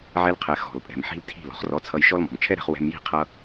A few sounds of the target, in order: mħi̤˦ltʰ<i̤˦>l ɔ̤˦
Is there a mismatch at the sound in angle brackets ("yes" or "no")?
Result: yes